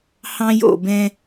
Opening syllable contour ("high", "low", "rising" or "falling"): high